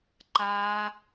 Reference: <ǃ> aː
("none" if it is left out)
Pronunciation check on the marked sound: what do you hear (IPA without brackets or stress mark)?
ǃ